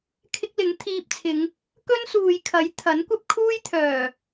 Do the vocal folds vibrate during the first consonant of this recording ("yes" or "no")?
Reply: no